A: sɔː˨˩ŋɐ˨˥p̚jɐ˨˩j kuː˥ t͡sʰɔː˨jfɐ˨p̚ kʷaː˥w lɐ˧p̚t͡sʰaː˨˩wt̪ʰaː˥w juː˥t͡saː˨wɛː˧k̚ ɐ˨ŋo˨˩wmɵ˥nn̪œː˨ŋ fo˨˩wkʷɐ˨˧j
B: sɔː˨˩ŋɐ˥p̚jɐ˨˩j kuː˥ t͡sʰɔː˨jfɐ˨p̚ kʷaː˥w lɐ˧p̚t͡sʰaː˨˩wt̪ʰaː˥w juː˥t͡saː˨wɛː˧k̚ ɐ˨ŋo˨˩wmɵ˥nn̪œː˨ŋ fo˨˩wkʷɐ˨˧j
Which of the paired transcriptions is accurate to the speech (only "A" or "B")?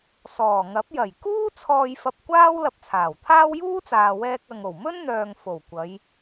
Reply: A